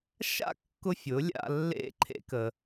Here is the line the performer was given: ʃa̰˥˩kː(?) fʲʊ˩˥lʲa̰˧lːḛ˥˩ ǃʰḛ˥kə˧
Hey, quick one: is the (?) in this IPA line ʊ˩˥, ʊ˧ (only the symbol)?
ʊ˧